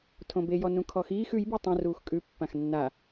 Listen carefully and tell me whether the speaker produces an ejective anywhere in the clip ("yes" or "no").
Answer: yes